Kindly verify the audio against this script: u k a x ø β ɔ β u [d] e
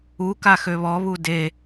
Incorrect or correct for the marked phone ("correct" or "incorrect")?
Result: correct